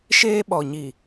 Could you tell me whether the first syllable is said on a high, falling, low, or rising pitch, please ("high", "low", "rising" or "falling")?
high